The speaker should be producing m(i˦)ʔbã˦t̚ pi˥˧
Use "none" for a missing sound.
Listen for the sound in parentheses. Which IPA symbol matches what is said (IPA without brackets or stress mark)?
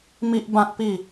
i˦